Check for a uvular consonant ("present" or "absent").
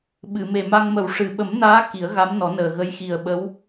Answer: absent